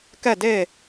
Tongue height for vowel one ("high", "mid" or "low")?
mid